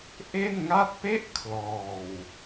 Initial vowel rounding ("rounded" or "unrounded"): unrounded